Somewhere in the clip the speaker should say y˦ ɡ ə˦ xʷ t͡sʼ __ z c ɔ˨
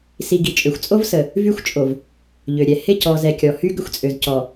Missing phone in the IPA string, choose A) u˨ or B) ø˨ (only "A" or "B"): B